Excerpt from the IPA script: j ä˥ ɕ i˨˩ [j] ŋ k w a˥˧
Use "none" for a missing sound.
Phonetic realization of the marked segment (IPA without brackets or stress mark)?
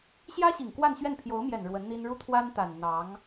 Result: none